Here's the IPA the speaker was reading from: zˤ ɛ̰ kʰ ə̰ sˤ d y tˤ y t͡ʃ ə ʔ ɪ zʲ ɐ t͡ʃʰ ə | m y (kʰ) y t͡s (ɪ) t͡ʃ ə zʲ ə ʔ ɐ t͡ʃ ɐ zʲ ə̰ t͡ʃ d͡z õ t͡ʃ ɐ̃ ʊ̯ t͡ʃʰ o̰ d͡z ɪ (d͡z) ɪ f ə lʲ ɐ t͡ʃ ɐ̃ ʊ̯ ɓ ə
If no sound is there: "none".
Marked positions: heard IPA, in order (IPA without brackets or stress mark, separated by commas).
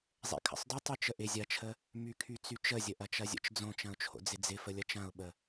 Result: kʰ, y, d͡z